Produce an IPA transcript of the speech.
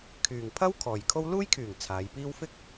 kʰ yː˨ ŋ pʰ ɐ˥ w kʰ ɔː˨ j kʰ o˥ w l uː˥ j kʰ yː˨˩ ŋ t͡sʰ aː˨˧ j p iː˥ w f ɪ˥ k̚

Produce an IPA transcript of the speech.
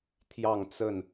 t̪ʰ j ɑ˥˨ ŋ t͡s ə˥˨ n

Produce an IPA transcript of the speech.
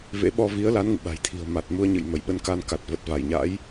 v ḛ˧˥ ɓ ɔ˧ v i˨˦ ə̯ l a˨˦ n ŋ ɨ̰˧˨ ɓ a̤˨˩ j t̪ʰ i̤˨˩ ə̯ m a˨˩ t̚ m u˧ ə̯ ɲ ɨ̰˧˨ j m ə˧˩ j ɓ ə˧ n k a˧ n k a˨˩ t̚ v ə˨˩ t̚ v a˧˩ j ɲ a̰˧˥ j

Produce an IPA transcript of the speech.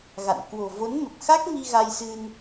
ɣ a̰˧˨ n k w o̤˨˩ v o˨˦ n m ə˨˩ p̚ x a˦˥ k̚ m i˧ ɣ a˧ j s ɨ˧ n

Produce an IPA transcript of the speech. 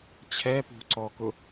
t͡ɕʰ ɛ p ṳ ǀ ɔ k ʊ

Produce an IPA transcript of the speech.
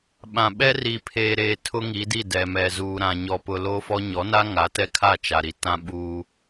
ɓ ã˨ ɓ ɛ˦ r i˨ pʰ eː˨ ɾ eː˨ tʰ ʊ˦ ŋ i˨˦ d i˦˨ d ɛ˨ m ɛ˨ z uː˨ ɾ ã˨ ɲ ɔ˨ p ʊ˨ l o˦ f ɔ˦ ɲ ɔ˨˦ n a˦ ŋ a˨˦ t ɛ˦ kʰ a˦˨ t͡ʃ a˨ ɾ i˨ t ã˦ ɓ uː˦

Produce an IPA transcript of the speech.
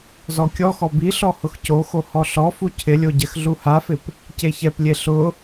z ɔ kʲ ɔ x ɔ b i ɬ ɔ h ʊ x c o x o h ɔ ɬ ɔ f u cʰ ɪ lʲ o ɟ ɛ x ɮ u h a f ɪ p | c e ç ɛ p lʲ e ɬ ʊ

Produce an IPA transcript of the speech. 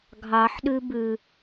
ɡʱ ɑ ħ ɗ ʉ b ʉ

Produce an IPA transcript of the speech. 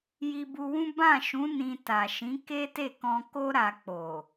j i˧ b u˧ w ũ˦ b ã˦˨ ʃ ũ˨˦ n ĩ˧ t a˨ ʃ ĩ˨˦ k e˦ t e˦˨ k ɔ̃˧ k o˦ ɾ a˧ k͡p o˨

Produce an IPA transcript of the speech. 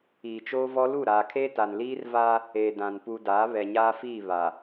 iː˨ t͡ʃ oː˦ v ɔ˦ l u˦˨ ɾ aː˨ kʰ eː˦ t a˨ n l iː˦ r v a˦ | eː˨ d ã˨ n p u˨ d aː˨˦ β ɛ˨ ɲ aː˦ f iː˦˨ β a˨

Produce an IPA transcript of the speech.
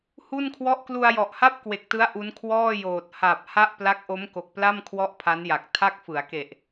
h u˥˩ n kʰ w ɔ˥˩ ʔ k l u˧ a̯ j ɔ˨˩ ʔ h a˥˩ p̚ k w e˨˩ k̚ t ɯ˦˥ a̯ ʔ u˦˥ n kʰ w ɔː˥˩ j oː˨˩ t̚ h a˨˩ p̚ h a˥˩ ʔ p l a˦˥ k̚ ʔ o˦˥ m k o˨˩ k̚ p l a˥˩ m kʰ w ɔ˥˩ ʔ pʰ a˦˥ n j a˨˩ k̚ tʰ a˥˩ k̚ f ɯ˩˦ a̯ k e˨˩ ʔ

